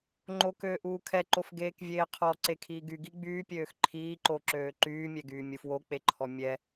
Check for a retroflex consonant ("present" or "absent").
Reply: absent